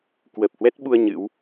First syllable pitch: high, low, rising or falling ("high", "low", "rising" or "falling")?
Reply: low